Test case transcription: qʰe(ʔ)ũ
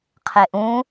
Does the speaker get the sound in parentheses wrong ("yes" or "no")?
no